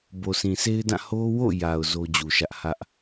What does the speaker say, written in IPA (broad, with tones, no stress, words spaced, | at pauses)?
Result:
bo˨sʰĩ˨sʰe˦ɪ̯dã˦˨ ho˦wo̰˦˨ja˨ʊ̯ zo˦d͡ʑu˨ʃä˦ʔ hä˦ʔ